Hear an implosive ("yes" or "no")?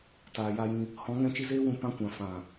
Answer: no